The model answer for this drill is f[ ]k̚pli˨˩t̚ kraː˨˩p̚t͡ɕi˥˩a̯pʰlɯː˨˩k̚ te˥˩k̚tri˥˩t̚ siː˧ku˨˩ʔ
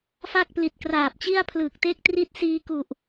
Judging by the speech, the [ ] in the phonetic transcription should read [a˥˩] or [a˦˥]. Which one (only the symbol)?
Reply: a˥˩